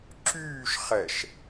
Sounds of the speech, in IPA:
ǁ yː ʃ χ ɛ ʃ

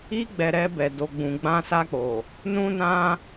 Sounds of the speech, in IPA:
i˧ ɡ͡b ɛ˨ ɾ ɛ˧ b ɛ˨ d o˨ ɡ͡b ũ˨ ɡ͡b ã˧ s a˧ k͡p o˨ | n ũ˦ n ã˦

